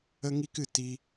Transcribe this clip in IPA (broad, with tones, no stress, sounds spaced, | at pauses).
ə˦ ŋ i˦ k ɨ˧ t i˧